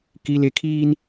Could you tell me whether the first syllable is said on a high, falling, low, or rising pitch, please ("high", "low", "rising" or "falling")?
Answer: high